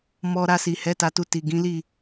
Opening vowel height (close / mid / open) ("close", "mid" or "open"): mid